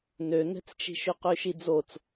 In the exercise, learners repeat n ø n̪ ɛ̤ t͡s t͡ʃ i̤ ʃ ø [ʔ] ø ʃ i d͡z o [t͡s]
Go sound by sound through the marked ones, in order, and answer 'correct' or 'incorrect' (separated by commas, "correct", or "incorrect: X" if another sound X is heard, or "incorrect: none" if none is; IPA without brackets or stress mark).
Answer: incorrect: q, correct